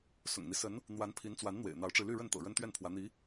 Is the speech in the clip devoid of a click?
yes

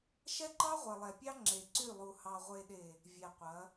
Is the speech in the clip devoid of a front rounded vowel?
no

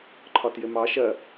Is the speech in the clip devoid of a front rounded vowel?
yes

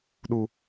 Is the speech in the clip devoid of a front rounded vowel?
yes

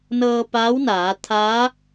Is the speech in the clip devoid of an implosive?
yes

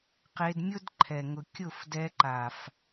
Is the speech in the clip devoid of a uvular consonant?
no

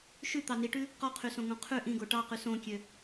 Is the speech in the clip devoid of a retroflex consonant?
no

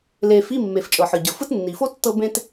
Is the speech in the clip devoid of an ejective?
no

